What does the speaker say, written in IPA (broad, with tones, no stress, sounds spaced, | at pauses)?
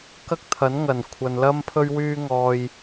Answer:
k ɐ˥ k̚ t̪ʰ ɐ˨˥ n ŋ ɐ˨˩ n kʷʰ ɐ˨ n l ɐ˥ m pʰ ɵ˧ ɥ w yː˧ ŋ ɔː˨ j